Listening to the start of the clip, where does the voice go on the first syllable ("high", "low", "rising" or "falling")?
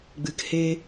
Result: low